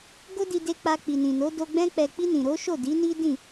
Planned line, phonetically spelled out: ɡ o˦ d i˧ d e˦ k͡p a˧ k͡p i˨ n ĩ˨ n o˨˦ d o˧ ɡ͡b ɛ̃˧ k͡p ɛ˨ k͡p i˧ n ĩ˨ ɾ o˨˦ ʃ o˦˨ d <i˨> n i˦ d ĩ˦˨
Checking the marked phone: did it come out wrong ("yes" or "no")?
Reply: yes